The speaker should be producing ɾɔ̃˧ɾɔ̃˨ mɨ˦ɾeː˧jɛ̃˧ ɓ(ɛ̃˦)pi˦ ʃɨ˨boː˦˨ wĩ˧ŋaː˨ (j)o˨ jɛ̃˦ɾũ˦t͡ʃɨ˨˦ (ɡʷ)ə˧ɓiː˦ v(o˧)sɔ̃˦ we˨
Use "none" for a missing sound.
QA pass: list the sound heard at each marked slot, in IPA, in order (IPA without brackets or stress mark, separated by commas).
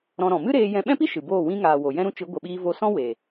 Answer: ɛ̃˦, w, ɡʷ, o˧